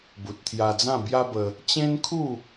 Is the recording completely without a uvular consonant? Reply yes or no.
yes